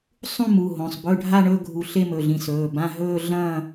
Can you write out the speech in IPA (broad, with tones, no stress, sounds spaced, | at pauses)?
sˤ ũ˥˧ m u˩˧˩ ɦ õ˩˧˩ sˤ b ɵ˧˥˧ ɖʱ a˥˧ ɳ ɵ˥˧ ɡʱ u˧˩ ɬ e˥˧ m ɵ˩˧˩ ɮ ĩ˧˩ s ɵː˩˧˩ b ã˧˥˧ ɦ ɵː˥˧ ɮ ɐ̃˥˧